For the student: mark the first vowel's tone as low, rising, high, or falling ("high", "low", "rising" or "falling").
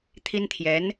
high